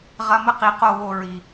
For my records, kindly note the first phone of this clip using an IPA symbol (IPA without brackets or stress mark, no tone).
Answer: ʁ